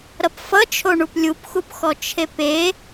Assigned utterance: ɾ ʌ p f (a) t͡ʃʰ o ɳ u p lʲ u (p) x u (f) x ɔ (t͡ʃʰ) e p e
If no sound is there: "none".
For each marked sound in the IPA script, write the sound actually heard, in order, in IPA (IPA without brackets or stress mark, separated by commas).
ʌ, p, p, t͡ʃʰ